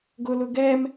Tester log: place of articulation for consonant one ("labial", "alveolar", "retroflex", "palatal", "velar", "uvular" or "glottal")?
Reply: velar